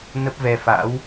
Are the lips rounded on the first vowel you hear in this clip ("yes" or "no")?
no